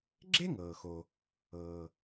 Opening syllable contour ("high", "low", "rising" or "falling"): high